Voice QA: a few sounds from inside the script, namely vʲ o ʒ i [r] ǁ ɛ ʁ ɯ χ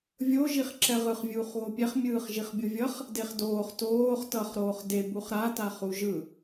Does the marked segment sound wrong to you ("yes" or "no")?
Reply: yes